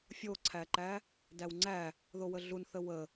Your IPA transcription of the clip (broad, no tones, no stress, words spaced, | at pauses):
fʲoǀʰæǃæ | dæwŋ͡ǀæ | ðowəɮunθə wə